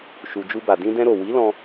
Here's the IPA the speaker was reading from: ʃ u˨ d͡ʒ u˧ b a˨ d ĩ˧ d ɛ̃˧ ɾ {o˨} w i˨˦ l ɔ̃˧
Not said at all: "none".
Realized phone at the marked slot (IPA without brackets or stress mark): o˨